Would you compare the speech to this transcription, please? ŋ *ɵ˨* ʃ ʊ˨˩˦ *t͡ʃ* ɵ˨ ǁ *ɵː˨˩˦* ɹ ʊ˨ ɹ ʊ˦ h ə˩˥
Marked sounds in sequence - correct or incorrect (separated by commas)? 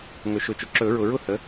incorrect, correct, incorrect